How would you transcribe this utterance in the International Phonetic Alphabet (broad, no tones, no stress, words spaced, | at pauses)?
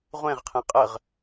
ʁʷẽʁqʰẽ qʼəʁ